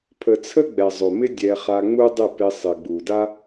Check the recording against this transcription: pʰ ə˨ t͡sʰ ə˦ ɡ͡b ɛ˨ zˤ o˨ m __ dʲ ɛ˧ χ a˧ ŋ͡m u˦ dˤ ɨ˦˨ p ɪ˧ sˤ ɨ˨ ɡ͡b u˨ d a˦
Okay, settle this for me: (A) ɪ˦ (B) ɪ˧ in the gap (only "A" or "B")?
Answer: A